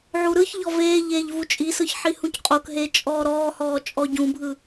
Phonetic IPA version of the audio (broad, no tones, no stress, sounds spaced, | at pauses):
ʕ u ɾ ɯ ç ʎ ɔ v eː ʎ eː ʎ v u t͡ʃʼ i s ɯ ç ħ i h ũ c qʼ o k ɦ eː t͡ʃʼ ɔː ɾ ɔː h ɔː t͡ʃʼ ɔ ɟ ũ bʱ ɯ